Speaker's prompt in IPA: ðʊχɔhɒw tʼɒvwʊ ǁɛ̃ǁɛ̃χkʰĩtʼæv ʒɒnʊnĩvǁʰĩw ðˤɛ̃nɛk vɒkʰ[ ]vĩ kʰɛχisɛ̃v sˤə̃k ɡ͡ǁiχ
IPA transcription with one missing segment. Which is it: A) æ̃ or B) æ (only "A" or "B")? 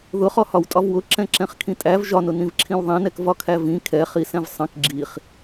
B